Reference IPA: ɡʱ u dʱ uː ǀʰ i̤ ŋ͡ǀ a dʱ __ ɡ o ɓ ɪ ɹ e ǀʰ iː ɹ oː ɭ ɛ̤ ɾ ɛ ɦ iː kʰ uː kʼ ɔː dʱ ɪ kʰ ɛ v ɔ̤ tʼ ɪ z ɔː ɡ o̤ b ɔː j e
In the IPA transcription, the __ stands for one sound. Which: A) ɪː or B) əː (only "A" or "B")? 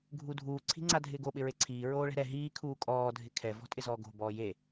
A